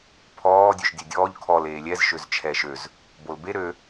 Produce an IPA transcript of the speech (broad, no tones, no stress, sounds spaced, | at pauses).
pʰ ɔː dʲ ø ʃ dʲ ɛ dʲ ɔː ʎ kʰ ɔ l eː lʲ ɛ z ʃ ø z t͡ʃʰ ɛ ʃ ø z | b o l b e ɾ ø